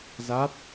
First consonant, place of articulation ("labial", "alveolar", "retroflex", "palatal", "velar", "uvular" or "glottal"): alveolar